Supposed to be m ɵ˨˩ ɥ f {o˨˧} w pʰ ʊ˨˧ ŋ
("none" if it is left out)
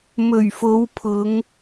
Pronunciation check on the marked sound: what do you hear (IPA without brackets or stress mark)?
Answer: o˨˧